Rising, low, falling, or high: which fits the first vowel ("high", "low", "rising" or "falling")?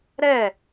falling